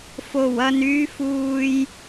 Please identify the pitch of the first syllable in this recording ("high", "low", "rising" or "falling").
low